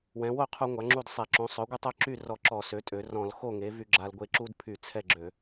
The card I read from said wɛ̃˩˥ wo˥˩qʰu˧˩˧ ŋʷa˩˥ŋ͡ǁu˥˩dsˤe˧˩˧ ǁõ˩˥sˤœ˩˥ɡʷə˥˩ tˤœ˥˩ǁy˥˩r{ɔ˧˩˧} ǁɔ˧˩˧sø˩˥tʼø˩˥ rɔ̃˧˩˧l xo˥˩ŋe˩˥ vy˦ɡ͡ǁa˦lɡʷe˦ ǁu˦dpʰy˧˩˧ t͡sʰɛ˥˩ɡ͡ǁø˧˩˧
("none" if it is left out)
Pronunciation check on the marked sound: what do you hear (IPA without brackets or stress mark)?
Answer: ɔ˧˩˧